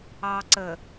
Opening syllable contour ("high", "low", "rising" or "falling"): low